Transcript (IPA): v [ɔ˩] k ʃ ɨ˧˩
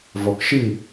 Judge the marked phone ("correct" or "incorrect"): correct